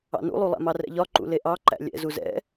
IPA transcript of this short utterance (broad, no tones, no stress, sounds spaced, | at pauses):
ɑ̰ n ṵ lˠ u lˠ æ̰ m ɑ r ɛ̰ ʎ ɒ ǃ ṵ l e ʔ ɑ ǃ æ̰ lʲ ɛ̰ z u z ɛ̰